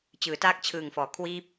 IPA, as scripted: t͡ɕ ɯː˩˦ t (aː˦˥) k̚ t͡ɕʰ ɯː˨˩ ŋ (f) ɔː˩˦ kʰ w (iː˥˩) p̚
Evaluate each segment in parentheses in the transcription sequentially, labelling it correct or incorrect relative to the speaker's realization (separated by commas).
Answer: correct, correct, incorrect